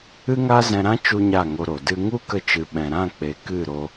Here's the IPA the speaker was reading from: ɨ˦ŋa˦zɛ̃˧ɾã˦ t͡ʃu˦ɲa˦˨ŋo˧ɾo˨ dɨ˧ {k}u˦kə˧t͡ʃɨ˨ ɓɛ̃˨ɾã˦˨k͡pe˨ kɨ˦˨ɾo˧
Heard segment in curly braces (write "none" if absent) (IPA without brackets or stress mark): ŋ